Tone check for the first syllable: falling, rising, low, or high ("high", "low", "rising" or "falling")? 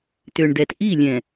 low